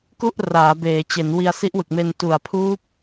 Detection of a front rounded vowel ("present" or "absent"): absent